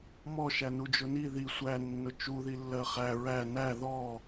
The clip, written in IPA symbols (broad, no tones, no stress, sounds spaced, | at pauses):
m ɔ ʃ æ n u d͡ʒ ʊ n i ð i sʷ æ nː ʊ t͡ʃ u ð i lː ɜ χ æ ɹ æ n æ ð ɔ